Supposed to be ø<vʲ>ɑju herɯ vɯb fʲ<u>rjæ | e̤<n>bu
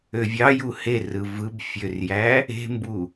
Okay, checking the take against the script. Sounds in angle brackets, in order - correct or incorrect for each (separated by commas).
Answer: correct, incorrect, incorrect